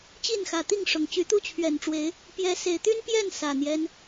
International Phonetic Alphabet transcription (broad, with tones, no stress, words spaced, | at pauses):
t͡ɕi˥˨nxä˨˩t̪i˥˨ŋ ʂʊ˨˩ŋ t͡ɕy˨˦t̪u˥˨t͡ɕʰɥɛ˨˩nʈ͡ʂwe˨˦ɪ̯ | pjɛ˨˦ se˨˩ɪ̯t̪y˦n pjɛ˥˨n sä˨˩n̪jɛ˦n